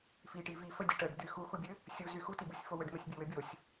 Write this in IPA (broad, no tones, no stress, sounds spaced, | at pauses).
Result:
f i ʈ i v i f ə dʲ ɘ ʈ ə ɖ d̪ y x u x u bʲ ɘ | sʲ u z y x u t i b u sʲ f o w ɘ ɖ m ɘ sʲ bʲ ə w ɘ bʲ o sʲ